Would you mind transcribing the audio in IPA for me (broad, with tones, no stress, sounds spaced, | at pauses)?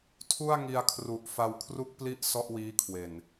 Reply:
tʰ u˥˩ a̯ ŋ i˧ a̯ kʰ r u˨˩ ʔ f a˧ w kʰ r u˥˩ k̚ p l i˥˩ ʔ s ɔ˥˩ ʔ w iː˦˥ kʰ w e˨˩ n